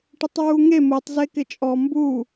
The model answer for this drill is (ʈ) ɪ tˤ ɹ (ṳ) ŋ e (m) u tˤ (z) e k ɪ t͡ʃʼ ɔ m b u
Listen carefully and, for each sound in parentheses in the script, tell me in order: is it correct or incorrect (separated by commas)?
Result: correct, incorrect, correct, correct